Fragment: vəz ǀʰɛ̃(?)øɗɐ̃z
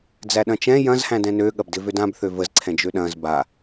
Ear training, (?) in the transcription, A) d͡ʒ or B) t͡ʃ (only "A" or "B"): A